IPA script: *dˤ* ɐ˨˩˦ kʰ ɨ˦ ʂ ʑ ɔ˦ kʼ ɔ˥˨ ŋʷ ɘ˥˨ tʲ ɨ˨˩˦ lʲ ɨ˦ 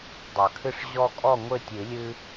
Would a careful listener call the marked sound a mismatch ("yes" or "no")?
no